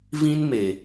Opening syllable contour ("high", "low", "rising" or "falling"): high